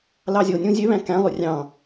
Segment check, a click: absent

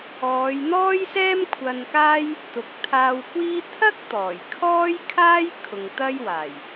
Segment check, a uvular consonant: absent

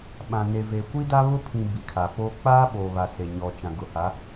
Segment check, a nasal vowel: present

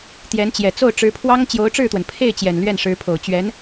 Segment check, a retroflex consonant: present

